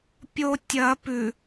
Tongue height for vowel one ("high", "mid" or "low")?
mid